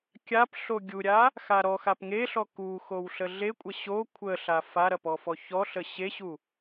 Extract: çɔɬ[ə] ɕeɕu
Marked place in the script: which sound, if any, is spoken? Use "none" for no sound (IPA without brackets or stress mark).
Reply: ə